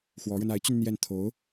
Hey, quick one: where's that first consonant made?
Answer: velum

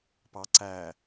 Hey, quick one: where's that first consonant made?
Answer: lips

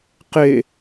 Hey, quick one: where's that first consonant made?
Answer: uvula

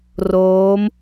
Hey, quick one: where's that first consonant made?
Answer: tongue tip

